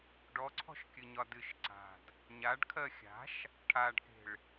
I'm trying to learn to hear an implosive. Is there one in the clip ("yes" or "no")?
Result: no